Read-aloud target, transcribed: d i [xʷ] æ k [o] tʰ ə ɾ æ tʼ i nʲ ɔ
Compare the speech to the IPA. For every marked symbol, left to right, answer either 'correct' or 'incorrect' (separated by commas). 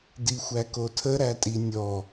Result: correct, correct